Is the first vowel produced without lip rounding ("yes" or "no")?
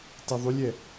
yes